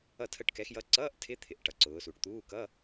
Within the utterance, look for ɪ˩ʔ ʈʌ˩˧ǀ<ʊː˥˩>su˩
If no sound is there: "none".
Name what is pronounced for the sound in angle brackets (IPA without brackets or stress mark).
ʊː˩˧